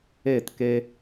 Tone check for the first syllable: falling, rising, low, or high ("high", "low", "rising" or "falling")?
falling